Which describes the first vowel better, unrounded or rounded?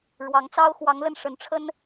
unrounded